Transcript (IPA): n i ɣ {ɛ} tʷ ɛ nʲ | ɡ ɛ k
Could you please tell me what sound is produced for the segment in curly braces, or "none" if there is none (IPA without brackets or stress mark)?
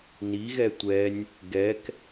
ɛ